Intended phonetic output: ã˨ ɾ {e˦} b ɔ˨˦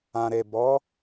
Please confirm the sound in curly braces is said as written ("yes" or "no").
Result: no